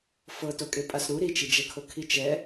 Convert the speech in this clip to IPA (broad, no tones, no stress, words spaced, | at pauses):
fɤtokʼe pʼasɾu ɾit͡ʃid͡ʒɛkʰo kʰit͡ʃɛ